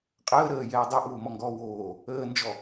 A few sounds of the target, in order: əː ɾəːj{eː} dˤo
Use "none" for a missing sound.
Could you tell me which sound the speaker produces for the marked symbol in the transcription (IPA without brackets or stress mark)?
ɛː